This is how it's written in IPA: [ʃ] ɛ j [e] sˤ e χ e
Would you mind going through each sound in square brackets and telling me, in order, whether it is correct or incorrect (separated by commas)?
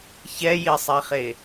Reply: incorrect, incorrect